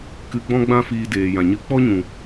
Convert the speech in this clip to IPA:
k ɨ˧ ɡ͡b ɔ̃˦ ɡ͡b ã˦ f iː˧ d eː˨ j ã˨ ɲ ɨ˧ k͡p ɔ˦ ɲ ũ˨

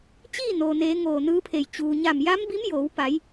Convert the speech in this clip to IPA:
t͡ɕ iː˥˨ n oː˩ n eː˩˧ ŋ oː˧˩ n ɯː˧˥ pʰ e˧˩ j t͡ɕ uː˩ ɲ a˧˩ m j a˧˥ m b i˧˥ m j oː˩˧ w p a˩˧ j

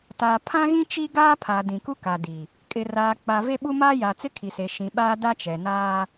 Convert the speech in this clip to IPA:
t aː˨ pʰ ã˦ ɣ ĩ˦ t͡ʃ i˦ ɡ aː˦ pʰ a˨ d ĩ˨ k u˦ k a˨ d i˨ | kʼ ɪ˨ r aː˨ k͡p a˨ v e˦ ɓ u˦ m aː˦ j a˨ t͡s ɪ˦ kʰ i˨ s e˨ ʃ ĩ˨ ɓ aː˦ d a˦ t͡ʃ ɛ˨ n aː˦

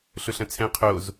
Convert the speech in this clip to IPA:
ɬ ʊ ɬ ɐ̃ t͡sʰ ɛ̃ qʰ o z

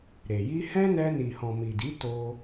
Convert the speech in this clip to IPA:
ɾ e˨ j i˧ h ɛ̃˦ n ɛ˧ n i˨ h ɔ̃˨ m i˨ d i˨˦ t o˦

